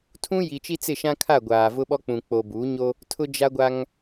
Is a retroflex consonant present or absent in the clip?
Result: absent